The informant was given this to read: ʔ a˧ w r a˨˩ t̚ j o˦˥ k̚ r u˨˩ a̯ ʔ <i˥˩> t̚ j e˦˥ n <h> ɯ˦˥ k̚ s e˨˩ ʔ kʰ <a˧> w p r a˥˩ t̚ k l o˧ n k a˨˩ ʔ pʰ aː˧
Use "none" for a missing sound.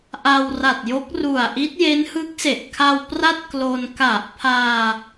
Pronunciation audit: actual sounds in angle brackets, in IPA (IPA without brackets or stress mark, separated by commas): i˦˥, h, a˧